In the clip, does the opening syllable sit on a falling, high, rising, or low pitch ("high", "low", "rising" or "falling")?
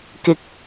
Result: low